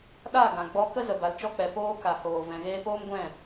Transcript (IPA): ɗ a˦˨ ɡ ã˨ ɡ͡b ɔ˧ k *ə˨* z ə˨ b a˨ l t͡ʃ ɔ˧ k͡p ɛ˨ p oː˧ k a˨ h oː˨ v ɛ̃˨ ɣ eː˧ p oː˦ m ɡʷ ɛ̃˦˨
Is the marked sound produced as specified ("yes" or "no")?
no